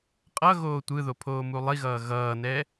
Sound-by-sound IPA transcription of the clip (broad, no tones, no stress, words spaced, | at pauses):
qʼʌ ɣoːtʷɯðo pʰoːmulˠiɣʌː ɣʌːnɛ